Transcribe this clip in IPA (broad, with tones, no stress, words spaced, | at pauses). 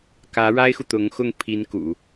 kä˧˥ ɻa˥ɪ̯xu˨t̪ʊ˧˥ŋxʊ˥˩ŋ pʰi˧˥n kṵ˨˩˦